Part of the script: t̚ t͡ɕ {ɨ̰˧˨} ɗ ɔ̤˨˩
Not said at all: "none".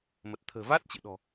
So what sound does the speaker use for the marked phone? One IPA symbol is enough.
ɨ̰˧˨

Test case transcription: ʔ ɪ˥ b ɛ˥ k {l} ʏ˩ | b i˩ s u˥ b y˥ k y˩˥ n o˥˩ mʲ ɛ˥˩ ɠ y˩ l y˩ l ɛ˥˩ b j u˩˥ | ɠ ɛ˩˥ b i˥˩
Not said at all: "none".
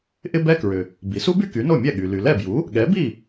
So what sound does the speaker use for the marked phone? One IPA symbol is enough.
ɹ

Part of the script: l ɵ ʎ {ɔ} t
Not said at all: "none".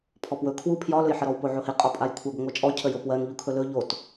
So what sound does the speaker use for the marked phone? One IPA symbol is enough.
o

